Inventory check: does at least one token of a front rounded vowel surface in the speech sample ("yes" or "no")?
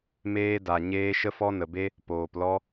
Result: no